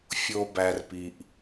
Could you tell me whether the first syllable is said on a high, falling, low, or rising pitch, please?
low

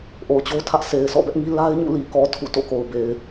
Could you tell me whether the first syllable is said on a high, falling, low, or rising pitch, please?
low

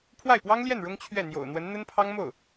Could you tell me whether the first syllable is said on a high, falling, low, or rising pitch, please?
falling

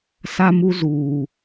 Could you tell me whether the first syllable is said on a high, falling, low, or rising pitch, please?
high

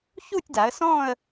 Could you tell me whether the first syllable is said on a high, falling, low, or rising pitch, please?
falling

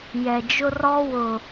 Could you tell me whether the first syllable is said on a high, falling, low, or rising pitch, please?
low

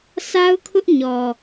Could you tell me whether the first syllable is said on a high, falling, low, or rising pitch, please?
high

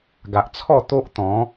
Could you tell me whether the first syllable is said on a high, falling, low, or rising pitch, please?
low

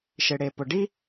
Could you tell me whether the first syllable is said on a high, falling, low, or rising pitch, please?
low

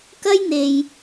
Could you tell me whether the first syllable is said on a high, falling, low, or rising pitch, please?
high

